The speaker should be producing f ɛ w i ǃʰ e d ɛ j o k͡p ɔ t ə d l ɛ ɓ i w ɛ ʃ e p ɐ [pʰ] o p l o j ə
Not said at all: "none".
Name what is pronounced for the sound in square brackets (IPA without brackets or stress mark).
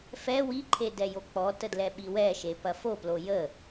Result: f